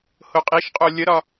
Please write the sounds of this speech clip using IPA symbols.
hoqʼiʃqʼo lʲəɾɒ

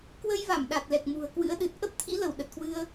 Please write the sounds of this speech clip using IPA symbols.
kwə˧jva˧˩m ɗa˨˩t̚lɛ˨˩k̚ mṳ˨˩ə̯kwɨ̰˧˥ə̯ ɗɨ˨˩t̚ ʔə˦˥p̚t̪ʰḭ˧˥ lə˧˩w ɗə˨˩t̚kwɨ˧ə̯

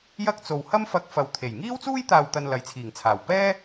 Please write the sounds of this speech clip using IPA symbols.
jɐ˥k̚t͡so˨w hɐ˥mfɐ˧k̚fɐ˨w t̪ʰe˨˩jŋiː˥wt͡suː˥j t̪aː˨wt̪ɐ˨n lɐ˨˧jt͡sʰiː˨˩ŋ t͡sʰaː˨˩w pɛː˥

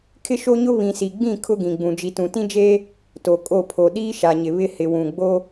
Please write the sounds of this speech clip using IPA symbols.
kʰɪ˦ʃo˦ɲʊ˦ βĩ˨si˨ɡ͡bĩ˦˨ kʰʊ˦ɡĩ˨ɡ͡bũ˨ d͡ʒi˨tũ˨tĩ˦d͡ʒeː˦ | to˨kʼo˦˨pʰo˨ ɗiː˦ʃa˨ɲɪ˨ βɪ˦hɪ˨wũ˨ ɡ͡bo˦

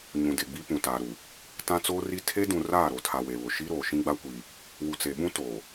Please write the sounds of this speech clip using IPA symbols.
ɲũ˨de˨ɡ͡bi˦ pũ˨taː˨ɾu˨ | tã˦t͡soː˦ri˦ tʰe˦dũ˨ raː˦˨ɾo˨tʰa˨ we˨βʊ˨ ʃi˦ɾoː˨ ʃĩ˦ɡ͡ba˦kʷiː˨ | wu˨t͡se˨ɓũ˦ toː˨

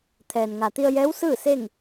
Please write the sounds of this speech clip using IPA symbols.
t̪ʰɛː˩nŋa˩ t̪i˧ə̯jɛː˧˥wsɯː˥˨se˥˨ŋ

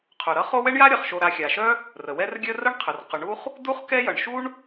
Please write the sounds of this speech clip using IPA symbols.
qʰʊ˩ɾʌ˦ χo˦wɛ˥ɳja˥ ɾʲʌ˩χʃo˨ɾa˨ xʲa˩ʃœ˥ | rə˩wɛ˦r ɡʲœ˦rə˥ɳqʰə˩r qʊ˨ɳu˥χ | du˥χkɛ˦ jʌ˩ɳʃu˥ɳ

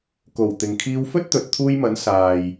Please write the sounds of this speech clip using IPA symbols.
ko˨˩w t̪ɪ˨ŋkʰiː˧wfɵ˥t̚t̪ɵ˨t̚ t̪ʰuː˧jmɐ˨˥n saː˨j

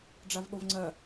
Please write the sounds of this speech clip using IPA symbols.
ɖ͡ʐavɠovŋ͡ǀɜ

